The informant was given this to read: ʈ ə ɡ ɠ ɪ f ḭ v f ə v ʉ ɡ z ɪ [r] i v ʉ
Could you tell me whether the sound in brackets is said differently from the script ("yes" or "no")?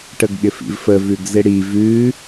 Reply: yes